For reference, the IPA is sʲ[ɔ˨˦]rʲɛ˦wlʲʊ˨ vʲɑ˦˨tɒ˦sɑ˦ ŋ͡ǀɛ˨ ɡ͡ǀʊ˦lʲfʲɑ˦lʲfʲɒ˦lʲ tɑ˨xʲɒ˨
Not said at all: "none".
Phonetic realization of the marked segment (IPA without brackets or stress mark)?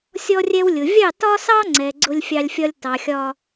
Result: ɔ˦